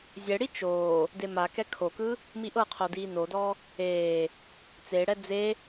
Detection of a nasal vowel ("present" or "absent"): absent